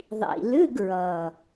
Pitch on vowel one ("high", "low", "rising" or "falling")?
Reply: low